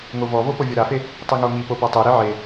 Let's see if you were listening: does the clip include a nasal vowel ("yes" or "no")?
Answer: no